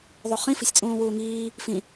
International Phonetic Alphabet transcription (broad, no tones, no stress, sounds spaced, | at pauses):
ðˤ u χ ĩ f i̤ sʲ t͡sʼ ũː w uː ŋ iː | f ĩ